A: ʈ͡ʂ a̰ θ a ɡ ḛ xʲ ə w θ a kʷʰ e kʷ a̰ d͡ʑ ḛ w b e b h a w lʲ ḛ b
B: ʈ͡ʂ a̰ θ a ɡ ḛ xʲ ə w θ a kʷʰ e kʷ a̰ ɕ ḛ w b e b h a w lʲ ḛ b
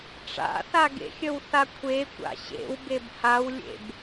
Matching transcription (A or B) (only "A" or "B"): B